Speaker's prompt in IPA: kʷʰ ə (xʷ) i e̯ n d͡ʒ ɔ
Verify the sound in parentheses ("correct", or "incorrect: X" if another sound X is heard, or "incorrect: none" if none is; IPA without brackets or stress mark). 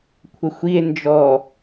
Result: correct